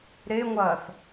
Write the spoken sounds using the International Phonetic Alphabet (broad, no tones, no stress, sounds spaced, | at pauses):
ɾ e ŋʷ ɐː θ